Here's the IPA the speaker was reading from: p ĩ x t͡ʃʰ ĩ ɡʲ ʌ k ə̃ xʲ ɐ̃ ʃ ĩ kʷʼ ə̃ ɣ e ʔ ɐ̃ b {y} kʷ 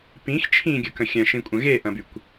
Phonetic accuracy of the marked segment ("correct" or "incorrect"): correct